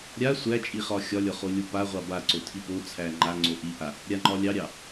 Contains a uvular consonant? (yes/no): yes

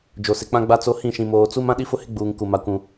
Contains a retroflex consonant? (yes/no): no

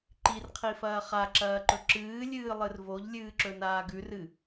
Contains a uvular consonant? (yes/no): yes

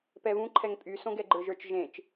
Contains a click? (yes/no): yes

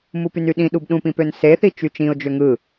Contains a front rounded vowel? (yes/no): yes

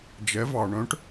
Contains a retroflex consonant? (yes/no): yes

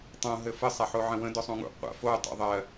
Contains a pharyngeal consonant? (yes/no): yes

